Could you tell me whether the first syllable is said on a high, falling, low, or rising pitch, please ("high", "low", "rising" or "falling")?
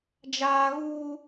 high